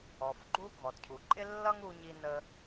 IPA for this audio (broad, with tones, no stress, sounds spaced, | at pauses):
ɔ˩ f ɡ͡ǃ u˧ ɡʱ ɔ˩ d cʰ u˩ ǃʼ ɪ˥ lː ʌ˥ ŋ u˧ ɲ i˧ n ə˧